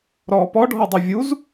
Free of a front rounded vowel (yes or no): yes